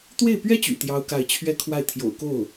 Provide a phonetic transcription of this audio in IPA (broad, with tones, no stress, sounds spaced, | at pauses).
t̪ w e˥˩ ɪ̯ p ɥ ɛ˥ t͡ɕ y̰˨˩ t̪ j ɑ˥ ʊ̯ k a˥˩ ɪ̯ t͡ɕʰ ɥ ɛ˥ kʰ w a˥˩ ɪ̯ t̪ʰ j o̰˨˩ ʊ̯ k o˥˩ ʊ̯